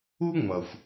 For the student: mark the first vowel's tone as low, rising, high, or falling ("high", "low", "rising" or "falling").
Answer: high